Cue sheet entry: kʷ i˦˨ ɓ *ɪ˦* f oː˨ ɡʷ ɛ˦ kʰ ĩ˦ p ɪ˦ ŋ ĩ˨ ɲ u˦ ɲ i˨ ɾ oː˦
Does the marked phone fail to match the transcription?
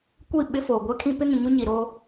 no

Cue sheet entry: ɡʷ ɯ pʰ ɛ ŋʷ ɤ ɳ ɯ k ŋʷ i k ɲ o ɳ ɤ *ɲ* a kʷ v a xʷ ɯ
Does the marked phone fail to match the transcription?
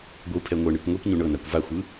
yes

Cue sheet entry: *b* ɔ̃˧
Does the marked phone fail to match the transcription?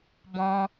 no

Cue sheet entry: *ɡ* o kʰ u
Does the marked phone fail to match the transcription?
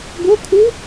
no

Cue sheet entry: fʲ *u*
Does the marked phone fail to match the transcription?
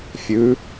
yes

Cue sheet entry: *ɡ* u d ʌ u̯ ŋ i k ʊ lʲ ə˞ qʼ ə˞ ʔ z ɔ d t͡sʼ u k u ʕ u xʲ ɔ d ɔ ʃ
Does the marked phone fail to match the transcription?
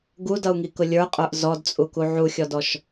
no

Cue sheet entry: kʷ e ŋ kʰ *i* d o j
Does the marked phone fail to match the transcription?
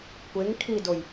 no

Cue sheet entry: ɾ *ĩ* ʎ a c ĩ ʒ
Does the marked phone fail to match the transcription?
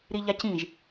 yes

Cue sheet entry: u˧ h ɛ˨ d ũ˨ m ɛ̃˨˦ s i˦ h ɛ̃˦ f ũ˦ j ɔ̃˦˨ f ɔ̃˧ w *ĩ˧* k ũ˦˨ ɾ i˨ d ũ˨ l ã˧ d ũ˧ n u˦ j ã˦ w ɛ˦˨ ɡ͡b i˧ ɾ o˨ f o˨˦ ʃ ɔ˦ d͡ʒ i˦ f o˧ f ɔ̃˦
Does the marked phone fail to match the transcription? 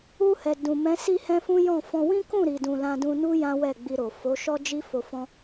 yes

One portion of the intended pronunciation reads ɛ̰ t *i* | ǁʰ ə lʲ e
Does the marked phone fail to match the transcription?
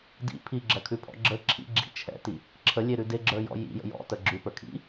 no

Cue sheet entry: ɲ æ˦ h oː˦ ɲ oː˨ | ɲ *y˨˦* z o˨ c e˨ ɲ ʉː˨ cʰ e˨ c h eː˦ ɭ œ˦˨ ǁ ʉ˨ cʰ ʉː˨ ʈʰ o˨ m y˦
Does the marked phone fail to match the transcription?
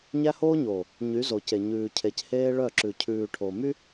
no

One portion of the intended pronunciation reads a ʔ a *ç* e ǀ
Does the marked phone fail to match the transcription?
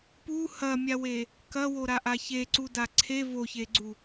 no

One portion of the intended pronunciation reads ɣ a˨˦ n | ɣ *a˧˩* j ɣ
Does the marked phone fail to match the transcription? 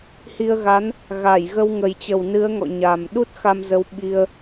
no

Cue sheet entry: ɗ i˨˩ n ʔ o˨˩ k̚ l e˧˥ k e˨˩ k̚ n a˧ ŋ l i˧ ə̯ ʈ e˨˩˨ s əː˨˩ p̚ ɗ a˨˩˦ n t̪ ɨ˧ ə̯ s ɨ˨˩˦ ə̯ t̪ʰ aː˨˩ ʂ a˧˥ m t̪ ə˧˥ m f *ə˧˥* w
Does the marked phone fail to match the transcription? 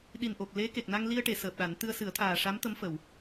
yes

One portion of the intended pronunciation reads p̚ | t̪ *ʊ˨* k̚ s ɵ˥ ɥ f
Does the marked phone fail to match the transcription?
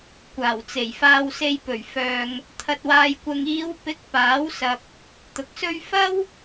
no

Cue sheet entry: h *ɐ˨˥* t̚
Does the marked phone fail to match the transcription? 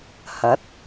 no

